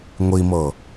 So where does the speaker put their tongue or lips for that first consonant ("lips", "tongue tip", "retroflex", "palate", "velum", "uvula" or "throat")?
velum